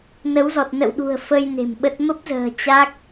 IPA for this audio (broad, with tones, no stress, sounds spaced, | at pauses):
n ə˨˦ w z ɔ˨˩ t̚ n ə̰˧˨ w ɗ ṳ˨˩ ə̯ f ə˧ j n e̤˨˩ m ɓ ə˦˥ t̚ m ə˦˥ p̚ z ə̤ː˨˩ t͡ɕ a˦˥ k̚